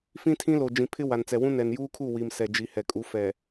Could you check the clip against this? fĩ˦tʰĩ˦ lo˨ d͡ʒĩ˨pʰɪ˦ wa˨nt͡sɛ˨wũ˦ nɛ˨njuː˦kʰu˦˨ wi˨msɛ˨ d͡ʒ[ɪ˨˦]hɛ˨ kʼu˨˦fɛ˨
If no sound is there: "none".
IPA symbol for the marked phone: i˨˦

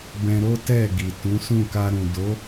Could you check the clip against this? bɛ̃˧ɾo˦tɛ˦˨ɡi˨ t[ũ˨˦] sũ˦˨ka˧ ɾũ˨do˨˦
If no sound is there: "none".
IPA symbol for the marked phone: ũ˨˦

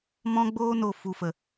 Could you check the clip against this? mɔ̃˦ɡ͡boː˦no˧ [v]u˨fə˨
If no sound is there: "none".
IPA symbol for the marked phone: f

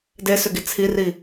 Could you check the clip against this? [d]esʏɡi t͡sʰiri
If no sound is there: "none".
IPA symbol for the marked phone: d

